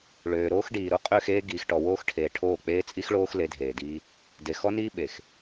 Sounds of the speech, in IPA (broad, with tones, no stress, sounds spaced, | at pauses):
ɭ øː˨ ɾ oː˦ x ɖ iː˨ ɾ o˦ qʼ ø˦˨ x eː˦ ɡ iː˨ x ʈ ɔ˨ w oː˦ x ʈʰ eː˨ ʈʰ oː˦˨ k͡p eː˦ t͡sʼ i˦ x ɭ oː˦ x l e˨˦ dʱ eː˨ d iː˦ | d e˨ x ɔ˦ n iː˦ ɓ e˨ x